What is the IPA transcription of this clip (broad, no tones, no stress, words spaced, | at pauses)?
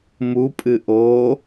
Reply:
mupʼɨ ʔo